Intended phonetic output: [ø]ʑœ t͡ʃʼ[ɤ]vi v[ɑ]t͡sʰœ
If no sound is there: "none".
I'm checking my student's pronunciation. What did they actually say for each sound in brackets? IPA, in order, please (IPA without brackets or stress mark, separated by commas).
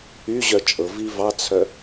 y, ɤ, ɑ